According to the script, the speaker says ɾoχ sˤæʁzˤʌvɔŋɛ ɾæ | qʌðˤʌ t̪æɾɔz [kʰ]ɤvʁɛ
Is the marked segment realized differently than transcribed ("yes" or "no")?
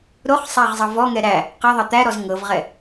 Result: yes